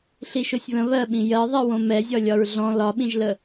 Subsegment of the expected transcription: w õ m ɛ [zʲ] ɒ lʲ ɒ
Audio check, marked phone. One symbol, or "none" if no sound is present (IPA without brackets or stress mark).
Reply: zʲ